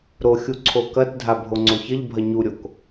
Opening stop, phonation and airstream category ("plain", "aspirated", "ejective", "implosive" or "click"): click